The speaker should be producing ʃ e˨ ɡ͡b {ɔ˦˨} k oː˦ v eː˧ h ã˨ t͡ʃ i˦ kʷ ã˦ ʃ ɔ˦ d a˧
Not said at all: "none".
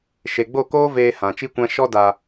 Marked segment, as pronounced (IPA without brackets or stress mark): o˦˨